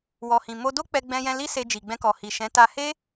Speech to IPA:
w ɔ˨ h ĩ˨ m o˧ d o˦ k͡p ɛ˧ ɡ͡b ɛ̃˧ j ɛ̃˧ l i˦ s e˧ d͡ʒ i˨ ɡ͡b ɛ̃˧ k ɔ˨ h i˨ ʃ ɛ̃˨˦ t a˧ h e˦

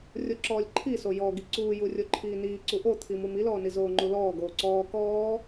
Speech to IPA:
rʲ o ǁ ɔː lʲ ǃʰ i s o j ɔ ɡ i ǀ uː j u rʲ o ǃʰ iː n iː ǀ u ʔ o t̪ʰ i m u m i l ɔː n i z oː ŋ͡ǃ u l ɔː ɡ oː ǀ ɔː k ɔː

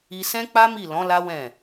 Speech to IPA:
i˧ s ɛ̃˦ k͡p a˦ m i˦˨ l ɔ̃˨˦ l a˦ w ɛ̃˦˨

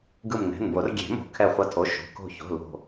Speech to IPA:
ɡ ɯ˧˩ m n ɛ̤˩˧˩ n b o˨˩˦ r ɡʲ e̤˨˩˦ m o̤˨˩˦ kʰ ɛ˧˩ χʷ ʌ˧˩ tʰ o˩˧˩ ʃ o̤˩˧˩ k o̤˧˩ ç o̤˩˧˩ l o̤˧˩

